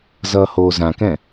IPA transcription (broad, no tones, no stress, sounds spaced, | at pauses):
z ʌː h oː z ã k ɛ̃